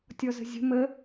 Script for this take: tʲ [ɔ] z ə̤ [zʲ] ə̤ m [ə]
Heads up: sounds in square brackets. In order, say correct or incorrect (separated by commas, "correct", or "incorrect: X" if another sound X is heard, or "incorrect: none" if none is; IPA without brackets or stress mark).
correct, correct, correct